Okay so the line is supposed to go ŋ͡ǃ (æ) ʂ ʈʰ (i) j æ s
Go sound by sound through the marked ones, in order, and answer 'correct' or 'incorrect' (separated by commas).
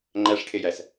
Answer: correct, incorrect